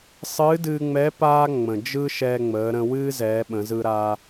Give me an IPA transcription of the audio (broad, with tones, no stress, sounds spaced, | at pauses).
sˤ ɨː˧˥ d ɨː˧ ŋ͡m ɛ˧˥ p aː˥ ŋ͡m ə̃˩ d͡ʒ ɯ˥ ʃ ɛː˧ ŋ͡m əː˩˧ ɾ ə̃˧ w ɨː˥ z ɛː˩˧ ɓ ə̃˩˧ z ɯ˧ ɾ aː˧